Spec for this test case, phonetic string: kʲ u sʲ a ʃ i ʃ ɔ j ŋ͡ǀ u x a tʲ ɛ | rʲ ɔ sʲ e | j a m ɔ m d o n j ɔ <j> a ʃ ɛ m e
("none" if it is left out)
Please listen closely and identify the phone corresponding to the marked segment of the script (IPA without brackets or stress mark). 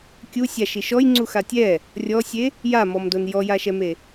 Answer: j